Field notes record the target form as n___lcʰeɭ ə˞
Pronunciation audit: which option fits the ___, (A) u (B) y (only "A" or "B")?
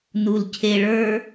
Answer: A